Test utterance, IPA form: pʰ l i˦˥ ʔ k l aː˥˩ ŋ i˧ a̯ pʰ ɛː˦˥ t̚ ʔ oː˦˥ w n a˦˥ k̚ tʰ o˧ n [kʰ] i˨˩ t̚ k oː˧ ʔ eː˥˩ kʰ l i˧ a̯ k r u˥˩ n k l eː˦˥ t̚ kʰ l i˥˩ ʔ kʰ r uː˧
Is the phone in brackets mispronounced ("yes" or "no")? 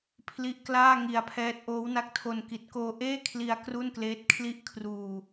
yes